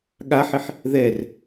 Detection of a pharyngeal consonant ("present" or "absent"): present